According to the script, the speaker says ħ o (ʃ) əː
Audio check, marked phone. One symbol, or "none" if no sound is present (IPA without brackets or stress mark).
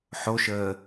ʃ